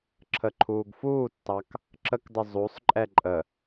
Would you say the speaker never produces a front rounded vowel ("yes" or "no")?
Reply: yes